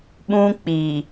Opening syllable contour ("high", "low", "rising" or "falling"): high